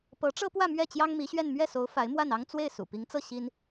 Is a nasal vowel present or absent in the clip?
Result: absent